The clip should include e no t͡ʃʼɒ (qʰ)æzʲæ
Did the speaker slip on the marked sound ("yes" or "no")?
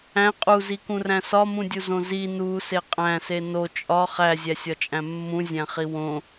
yes